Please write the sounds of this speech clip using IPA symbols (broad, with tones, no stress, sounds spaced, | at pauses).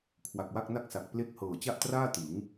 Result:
kʰ w a˨˩ k̚ w a˥˩ k̚ n a˥˩ k̚ s a˨˩ k̚ p l e˦˥ k̚ h ɤː˨˩ t͡ɕ a˥˩ ʔ t r aː˥˩ t ɯ˩˦ ŋ